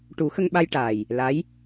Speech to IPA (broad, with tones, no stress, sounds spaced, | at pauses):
ʈ u˨˩˦ x ə˧ ŋ ɓ a˧ j ʈ aː˨˩ j | l a˧˥ j